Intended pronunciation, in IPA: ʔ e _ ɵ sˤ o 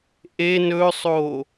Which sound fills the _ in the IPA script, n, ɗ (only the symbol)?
n